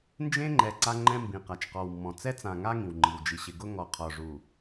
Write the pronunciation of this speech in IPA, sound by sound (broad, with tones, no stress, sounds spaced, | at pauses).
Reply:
n d͡ʒ ẽ˦ ŋ͡ǃ ɛ˨ ǀ a˦ ŋ͡ǃ ɛ̃˦ m b ĩ˨ q a˨ t͡ʃ q ɔ˨ w mː ɔ̃˨ t͡s ɛ˦ t͡s ã˨ ŋ a˦ ŋ ĩ˨ w ŋ͡ǃ i˨ w d͡ʒ i˨ ɕ ɪ˨ ɡ ʊ˦ ŋ ɔ˨ qʰ ɔ˨ ʐ u˨